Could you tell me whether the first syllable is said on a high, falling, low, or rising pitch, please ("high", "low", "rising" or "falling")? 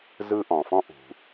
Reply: high